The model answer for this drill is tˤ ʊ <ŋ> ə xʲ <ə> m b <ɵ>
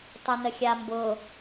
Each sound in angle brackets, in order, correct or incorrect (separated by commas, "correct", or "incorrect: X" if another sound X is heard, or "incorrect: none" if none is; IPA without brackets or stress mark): incorrect: n, incorrect: a, incorrect: ʊ